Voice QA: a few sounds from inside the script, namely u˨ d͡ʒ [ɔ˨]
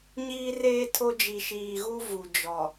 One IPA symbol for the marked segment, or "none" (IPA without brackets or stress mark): ɔ˨